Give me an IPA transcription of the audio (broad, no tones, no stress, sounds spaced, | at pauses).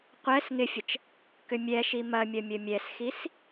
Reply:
qʷ ɛ s ŋ ɪ fʲ ə t͡ʃ | k ʏ mʲ ɛ ʃ i m ɐ mʲ ɐ mʲ ə mʲ ɛ s x i s